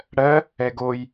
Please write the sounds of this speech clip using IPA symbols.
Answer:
ɽɜ | ɛɡoj

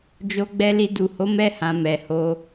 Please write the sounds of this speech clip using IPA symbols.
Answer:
d͡ʒo˧ɡ͡bɛ˧li˧ du˨ho˨˦mɛ˧hã˨ mɛ˨ho˧

